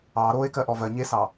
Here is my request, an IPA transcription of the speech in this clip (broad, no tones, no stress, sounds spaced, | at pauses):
ɑ ɾ o e̯ k ɜ ʔ ɔ v ɜ ɲ e s ɑ